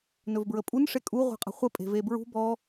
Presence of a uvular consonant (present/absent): present